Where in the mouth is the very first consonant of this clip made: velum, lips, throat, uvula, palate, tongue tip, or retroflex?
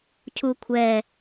palate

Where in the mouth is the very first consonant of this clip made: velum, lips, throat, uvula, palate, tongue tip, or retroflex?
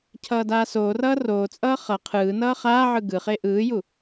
palate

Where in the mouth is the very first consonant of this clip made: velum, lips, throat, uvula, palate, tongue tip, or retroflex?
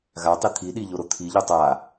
velum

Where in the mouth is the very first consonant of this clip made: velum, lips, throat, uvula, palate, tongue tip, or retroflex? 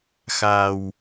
velum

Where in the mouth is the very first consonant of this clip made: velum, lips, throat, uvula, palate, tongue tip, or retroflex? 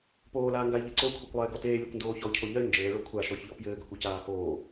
lips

